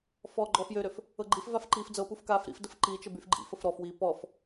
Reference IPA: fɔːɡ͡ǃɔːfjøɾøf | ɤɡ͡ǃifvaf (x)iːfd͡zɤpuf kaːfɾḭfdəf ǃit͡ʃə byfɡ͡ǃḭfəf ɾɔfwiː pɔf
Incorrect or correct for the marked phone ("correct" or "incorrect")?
incorrect